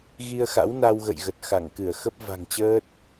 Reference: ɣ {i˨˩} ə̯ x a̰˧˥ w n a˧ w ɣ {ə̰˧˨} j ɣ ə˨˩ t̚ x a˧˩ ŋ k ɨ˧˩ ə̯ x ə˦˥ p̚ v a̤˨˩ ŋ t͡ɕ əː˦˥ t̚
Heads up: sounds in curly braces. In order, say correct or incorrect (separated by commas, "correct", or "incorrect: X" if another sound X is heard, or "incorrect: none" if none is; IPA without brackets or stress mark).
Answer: incorrect: i˧, correct